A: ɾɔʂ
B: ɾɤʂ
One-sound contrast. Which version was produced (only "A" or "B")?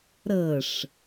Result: B